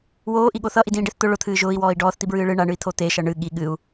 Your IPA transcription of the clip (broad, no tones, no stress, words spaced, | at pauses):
woːʔiɠo θʌʔidĩːɖeθ t̪ʊ ɭʊt̪ʰɨː ʒʊːi̯wɔːi̯ ɖɔːθt̪ibɹɨː ɭɨ ɳaɳɨi̯t̪ʰo t̪eʃʌ ɳɨ ɠi ɠɨu̯